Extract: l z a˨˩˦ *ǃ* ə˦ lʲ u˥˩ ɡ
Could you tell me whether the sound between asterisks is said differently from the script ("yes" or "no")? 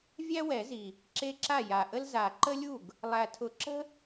no